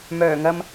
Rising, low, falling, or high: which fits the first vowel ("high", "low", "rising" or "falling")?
low